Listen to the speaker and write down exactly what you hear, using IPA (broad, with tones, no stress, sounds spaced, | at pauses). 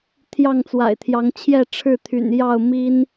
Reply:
t̪ʰ j ɑ˥˨ ŋ t͡s w a̰˨˩ ɪ̯ t̪ʰ j ɑ˨˦ ŋ t͡ɕʰ j ɛ˥˨ ʈ͡ʂʰ ɻ̩˥˨ t̪ʰ y̰˨˩ n j ɑ˥˨ ʊ̯ m i˦ n